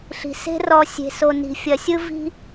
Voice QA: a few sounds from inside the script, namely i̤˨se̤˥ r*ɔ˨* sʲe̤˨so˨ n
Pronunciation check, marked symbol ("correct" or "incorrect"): correct